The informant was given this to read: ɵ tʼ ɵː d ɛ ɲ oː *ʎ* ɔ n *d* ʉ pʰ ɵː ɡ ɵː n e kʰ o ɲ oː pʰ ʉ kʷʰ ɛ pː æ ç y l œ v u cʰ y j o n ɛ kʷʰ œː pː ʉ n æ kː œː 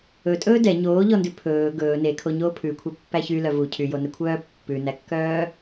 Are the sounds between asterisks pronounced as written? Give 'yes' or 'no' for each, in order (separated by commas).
yes, yes